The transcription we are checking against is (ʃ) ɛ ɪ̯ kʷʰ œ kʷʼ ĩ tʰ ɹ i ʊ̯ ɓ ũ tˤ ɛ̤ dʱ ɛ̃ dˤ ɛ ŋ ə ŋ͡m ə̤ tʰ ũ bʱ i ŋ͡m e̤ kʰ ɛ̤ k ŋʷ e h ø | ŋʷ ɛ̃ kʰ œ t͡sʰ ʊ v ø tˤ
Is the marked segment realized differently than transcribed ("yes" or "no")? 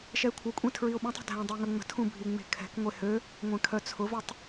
no